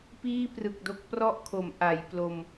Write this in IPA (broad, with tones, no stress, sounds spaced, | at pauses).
p iː˥˩ p r ɯ˨˩ k̚ d o˦˥ k̚ p r ɔ˥˩ ʔ kʰ o˩˦ m ʔ a˩˦ j p l o˧ m